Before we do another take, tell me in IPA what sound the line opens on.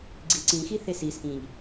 ɡ͡ǀ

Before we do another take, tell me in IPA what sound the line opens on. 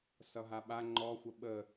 s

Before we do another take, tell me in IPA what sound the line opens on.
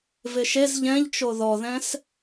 v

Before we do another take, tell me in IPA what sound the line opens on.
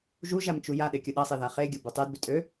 ʒ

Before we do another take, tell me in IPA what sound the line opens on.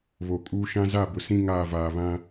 β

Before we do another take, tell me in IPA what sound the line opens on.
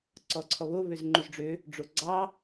ǀ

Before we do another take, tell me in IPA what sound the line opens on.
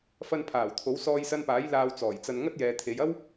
f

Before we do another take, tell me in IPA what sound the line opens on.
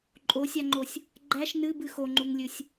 ǃʼ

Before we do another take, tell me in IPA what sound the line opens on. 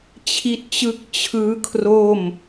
t͡ɕʰ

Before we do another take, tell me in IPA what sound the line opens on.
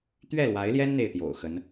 t̪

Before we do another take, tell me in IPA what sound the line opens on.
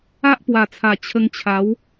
a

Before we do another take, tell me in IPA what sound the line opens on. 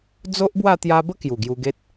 d͡z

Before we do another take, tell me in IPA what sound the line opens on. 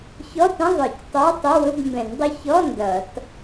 ç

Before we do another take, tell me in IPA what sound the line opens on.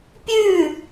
pʲ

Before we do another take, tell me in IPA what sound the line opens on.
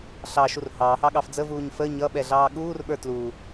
ɬ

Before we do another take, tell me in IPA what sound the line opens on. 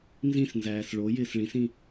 n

